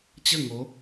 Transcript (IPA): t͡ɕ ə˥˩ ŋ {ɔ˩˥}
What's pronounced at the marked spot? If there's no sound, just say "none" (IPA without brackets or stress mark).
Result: o˩˥